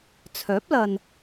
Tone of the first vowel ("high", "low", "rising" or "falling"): rising